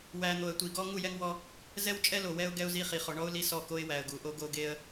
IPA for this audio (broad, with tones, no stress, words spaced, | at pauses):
wæ˨ n̪o˨ə̯tʷi˨ ɡɔ˦ ŋu˦˨jɛ˦ŋwɔ˦ | zɛ˦w t͡ʃʼɛ˦lo˨wɛ˦ʊ̯ ɡɛ˦ʊ̯zi˦χi˨ χɔ˨ɳɔ˦ʊ̯ li˦sɔ˦˨ko˦ɪ̯ wæ˨ə̯ɡu˨ʔo˦ ɡo˦ ɡe˦ə̯